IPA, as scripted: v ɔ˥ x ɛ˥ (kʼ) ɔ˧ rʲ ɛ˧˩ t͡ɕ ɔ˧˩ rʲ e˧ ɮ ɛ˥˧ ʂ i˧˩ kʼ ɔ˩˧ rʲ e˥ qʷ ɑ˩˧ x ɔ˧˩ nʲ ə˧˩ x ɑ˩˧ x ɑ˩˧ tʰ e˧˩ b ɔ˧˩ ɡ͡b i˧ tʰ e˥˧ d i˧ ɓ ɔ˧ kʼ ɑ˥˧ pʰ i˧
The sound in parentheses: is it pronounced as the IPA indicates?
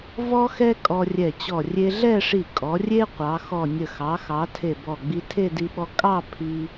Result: yes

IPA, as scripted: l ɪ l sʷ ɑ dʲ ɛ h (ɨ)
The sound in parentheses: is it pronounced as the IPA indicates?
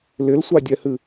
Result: yes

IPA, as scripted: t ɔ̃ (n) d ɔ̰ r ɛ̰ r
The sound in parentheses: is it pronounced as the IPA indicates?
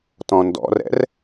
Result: yes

